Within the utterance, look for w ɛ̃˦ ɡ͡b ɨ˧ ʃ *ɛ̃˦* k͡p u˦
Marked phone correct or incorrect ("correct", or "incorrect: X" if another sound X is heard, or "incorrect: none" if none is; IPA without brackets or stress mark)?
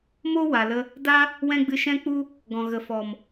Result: correct